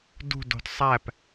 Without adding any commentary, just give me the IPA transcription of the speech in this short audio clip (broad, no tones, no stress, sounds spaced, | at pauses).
d ṳ d o̤ d sˤ æ p